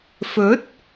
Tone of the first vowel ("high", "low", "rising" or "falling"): rising